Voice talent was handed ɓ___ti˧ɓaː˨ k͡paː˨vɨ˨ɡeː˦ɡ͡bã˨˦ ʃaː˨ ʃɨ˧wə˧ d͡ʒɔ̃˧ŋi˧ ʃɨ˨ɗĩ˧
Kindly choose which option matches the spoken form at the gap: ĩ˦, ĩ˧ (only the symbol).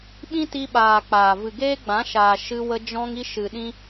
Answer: ĩ˦